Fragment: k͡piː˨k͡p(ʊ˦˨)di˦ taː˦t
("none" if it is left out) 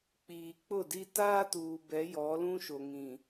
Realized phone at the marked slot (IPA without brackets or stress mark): ʊ˦˨